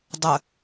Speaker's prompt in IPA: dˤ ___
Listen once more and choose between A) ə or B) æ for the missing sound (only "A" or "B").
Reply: A